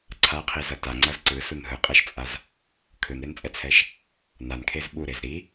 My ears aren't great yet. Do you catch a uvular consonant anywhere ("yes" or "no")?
yes